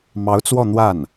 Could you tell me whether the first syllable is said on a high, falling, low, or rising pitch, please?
rising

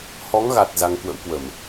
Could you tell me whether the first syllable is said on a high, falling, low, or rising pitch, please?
rising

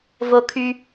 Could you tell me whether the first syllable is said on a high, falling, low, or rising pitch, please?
high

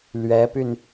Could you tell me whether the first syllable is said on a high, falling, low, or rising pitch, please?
rising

